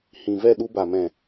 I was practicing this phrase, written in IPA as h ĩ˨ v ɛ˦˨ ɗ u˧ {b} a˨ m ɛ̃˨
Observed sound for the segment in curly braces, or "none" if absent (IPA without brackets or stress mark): b